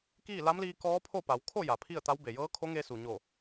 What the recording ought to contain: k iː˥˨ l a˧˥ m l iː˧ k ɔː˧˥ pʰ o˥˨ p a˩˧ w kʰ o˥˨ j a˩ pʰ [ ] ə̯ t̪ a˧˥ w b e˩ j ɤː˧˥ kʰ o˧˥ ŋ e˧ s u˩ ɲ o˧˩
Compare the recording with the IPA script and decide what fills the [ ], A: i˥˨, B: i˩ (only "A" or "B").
A